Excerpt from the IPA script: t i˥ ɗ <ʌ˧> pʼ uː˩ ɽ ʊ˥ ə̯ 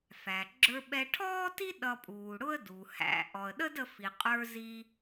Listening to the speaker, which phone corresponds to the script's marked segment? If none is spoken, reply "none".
ʌ˧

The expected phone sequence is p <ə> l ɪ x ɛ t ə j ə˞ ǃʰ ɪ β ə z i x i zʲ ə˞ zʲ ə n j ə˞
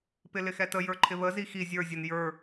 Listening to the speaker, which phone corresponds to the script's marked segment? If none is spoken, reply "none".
ɪ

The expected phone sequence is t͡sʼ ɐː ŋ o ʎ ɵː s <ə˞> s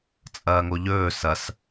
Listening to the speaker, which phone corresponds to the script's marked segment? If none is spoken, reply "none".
ɐ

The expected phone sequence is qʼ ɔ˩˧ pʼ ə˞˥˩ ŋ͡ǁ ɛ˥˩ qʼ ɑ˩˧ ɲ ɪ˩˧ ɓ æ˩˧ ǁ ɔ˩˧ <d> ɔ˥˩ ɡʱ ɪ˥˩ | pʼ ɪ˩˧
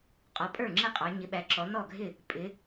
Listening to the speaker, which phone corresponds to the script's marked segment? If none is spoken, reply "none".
n̪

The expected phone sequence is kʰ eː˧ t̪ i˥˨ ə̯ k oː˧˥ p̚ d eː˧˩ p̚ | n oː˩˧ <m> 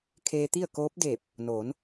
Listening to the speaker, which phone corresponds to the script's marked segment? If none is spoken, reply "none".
n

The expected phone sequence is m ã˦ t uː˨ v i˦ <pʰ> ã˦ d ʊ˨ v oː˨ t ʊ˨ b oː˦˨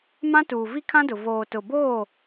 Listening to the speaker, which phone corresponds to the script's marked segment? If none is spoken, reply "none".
kʰ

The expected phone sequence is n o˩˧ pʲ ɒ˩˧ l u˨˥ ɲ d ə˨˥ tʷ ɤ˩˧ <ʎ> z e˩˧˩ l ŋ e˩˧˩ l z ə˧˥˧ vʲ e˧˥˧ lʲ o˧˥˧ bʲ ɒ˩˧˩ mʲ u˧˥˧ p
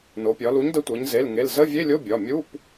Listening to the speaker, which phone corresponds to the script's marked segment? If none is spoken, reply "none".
ɲ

